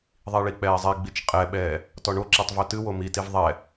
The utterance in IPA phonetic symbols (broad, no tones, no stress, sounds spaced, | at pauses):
ðˤ i ɭ i k͡p ɛː zˤ e ɡ͡b i t͡ʃ qʼ ɛ ɓ ɛː | t ɔ ɳ o ǁ ɛ tˤ v o t ɨ w o m i t i v ðˤ ɛ